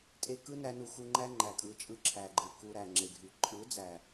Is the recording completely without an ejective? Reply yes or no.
no